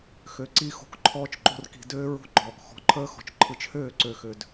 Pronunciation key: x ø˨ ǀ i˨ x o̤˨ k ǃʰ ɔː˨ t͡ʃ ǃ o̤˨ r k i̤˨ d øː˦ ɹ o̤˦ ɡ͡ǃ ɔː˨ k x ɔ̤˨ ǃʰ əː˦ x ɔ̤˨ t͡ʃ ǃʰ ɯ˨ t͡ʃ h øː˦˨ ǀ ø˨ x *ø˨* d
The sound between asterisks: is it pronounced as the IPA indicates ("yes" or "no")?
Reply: yes